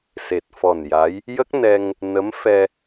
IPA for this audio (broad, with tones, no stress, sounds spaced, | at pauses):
s e˨˩ t̚ f ɔ˨˩ n j a˧˥ j | j ə˦˥ k̚ n ɛ˧ ŋ | n ə˧˥ m f ɛ˧